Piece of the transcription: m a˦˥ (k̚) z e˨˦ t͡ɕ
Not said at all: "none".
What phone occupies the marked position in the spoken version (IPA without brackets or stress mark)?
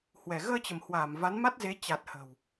t̚